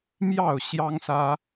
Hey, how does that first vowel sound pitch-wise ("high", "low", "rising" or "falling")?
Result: falling